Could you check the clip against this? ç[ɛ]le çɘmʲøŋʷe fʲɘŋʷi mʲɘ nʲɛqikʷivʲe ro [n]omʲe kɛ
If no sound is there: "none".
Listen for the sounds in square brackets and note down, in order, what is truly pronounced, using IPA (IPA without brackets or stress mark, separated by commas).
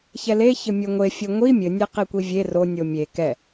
ɛ, nʲ